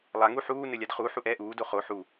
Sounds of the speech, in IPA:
lˠ a ŋ u ħ uː n ɘ lʲ a d χ u ħ u ʔ ɛ ʔ uː d o χ o ħ u

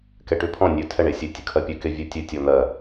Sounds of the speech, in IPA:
k ɛ ʈ ʉ pʰ ɔ̃ nʲ ʉ tʰ ɛ ɳ e sʲ e tʲ ʉ kʰ ɜ pʲ ʉ k e vʲ ʉ tʲ ʉ tʲ ɔ n̪ ɜ

